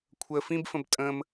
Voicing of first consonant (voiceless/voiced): voiceless